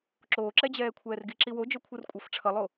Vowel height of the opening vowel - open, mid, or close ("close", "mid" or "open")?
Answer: mid